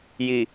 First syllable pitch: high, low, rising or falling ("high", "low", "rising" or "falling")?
low